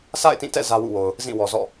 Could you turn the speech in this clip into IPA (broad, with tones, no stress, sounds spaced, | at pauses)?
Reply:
sʰ a̰˦˨ ɪ̯ t ĩ˦˨ t ɛ̰˦˨ z ä˦ w ṵ˦˨ w o˨ ʊ̯ | z ĩ˦˨ w ɔ˨ z ɔ̰˦˨